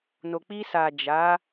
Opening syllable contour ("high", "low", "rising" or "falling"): low